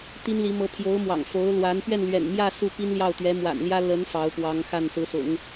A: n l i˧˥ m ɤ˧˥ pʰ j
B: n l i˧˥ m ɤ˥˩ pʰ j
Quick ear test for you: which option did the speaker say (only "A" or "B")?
A